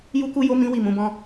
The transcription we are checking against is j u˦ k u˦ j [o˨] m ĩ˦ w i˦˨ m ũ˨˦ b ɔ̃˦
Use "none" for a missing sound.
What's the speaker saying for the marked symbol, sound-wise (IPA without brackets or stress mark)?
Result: o˦